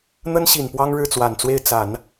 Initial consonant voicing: voiced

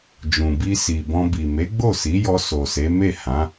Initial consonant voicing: voiced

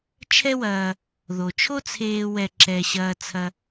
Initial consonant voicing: voiceless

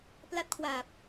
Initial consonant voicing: voiceless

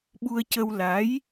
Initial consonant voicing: voiced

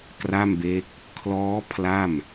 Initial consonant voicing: voiceless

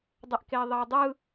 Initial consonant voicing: voiced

